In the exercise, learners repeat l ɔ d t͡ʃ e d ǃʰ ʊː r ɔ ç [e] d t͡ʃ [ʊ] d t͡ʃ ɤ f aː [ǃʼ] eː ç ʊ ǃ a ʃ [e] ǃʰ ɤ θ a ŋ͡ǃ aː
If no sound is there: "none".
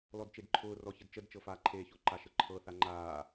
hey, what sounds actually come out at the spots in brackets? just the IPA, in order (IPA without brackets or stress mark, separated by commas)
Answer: ɘ, ə, ǃʰ, ɘ